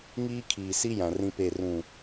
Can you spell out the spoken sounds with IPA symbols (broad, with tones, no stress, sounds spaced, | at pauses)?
ŋ iː˦ kʰ iː˨ s i˦ j ã˨ r ĩ˦ p e˦˨ r ũ˦˨